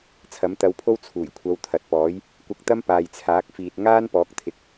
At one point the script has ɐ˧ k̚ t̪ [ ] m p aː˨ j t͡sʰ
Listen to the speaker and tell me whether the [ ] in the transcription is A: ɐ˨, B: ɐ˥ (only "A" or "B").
B